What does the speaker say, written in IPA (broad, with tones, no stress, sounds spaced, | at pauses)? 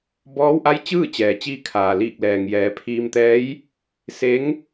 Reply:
b ɔː˧˥ w ʔ a˧˥ j t͡ɕ ɯː˥˨ t͡ɕ ɛː˩ t͡ɕ iː˧ kʰ aː˩ l iː˧˩ k̚ l ɛː˩ ŋ j ɛː˩˧ pʰ iː˧ m t̪ ɛː˧˥ j | s e˧˥ ŋ